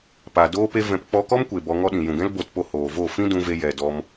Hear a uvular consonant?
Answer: no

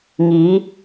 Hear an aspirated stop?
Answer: no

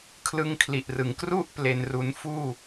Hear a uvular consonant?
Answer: no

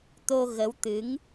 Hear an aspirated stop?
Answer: no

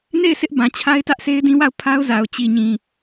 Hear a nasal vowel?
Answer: yes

